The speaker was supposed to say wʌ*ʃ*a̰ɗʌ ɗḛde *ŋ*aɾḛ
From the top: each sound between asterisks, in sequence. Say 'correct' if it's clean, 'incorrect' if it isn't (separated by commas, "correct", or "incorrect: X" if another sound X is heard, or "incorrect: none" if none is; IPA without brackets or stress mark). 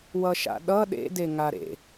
correct, correct